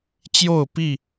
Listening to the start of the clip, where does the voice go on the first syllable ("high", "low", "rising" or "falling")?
falling